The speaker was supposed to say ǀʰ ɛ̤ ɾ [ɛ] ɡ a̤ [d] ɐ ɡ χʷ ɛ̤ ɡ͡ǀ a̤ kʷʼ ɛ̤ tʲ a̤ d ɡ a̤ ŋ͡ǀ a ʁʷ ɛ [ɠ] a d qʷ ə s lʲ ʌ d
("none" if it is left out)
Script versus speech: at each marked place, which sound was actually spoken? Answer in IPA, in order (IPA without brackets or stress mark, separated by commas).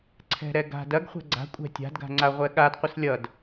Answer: ɛ, d, ɠ